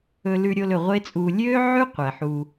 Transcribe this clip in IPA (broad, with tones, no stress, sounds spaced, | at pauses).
ɵ˧ l ʉ˧ ɾʲ o˧ l ɵ˨ ʁʷ e˦ t͡sʼ uː˧ lʲ øː˦ ʕ ʉ˦ qʷ ɛ˨ ħ uː˧